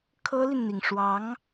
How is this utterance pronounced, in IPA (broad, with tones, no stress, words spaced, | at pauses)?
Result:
kʰɤ˥li˨nn̪i˩ŋʂwɑ˧˥ŋ